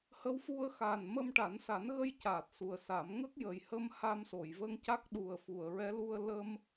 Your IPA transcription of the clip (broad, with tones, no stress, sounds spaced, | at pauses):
h ə˧˥ w f u˧ ə̯ x aː˨˩ n m ə˧ m ʈ a˨˩˦ n s a˨˩˦ n ɣ ə˧ j c aː˨˩ t̚ s u˨˩ ə̯ s a˨˩˦ m ŋ ə˦˥ k̚ j əː˨˩ j h ə˧ m h a˧ m s o˨˩˨ j v ə˧ ŋ c a˦˥ k̚ ɗ u˨˩ ə̯ f u˨˩˨ ə̯ ɹ ɛ˧˥ l u˧ ə̯ l ə˧ m